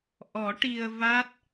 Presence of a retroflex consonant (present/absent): present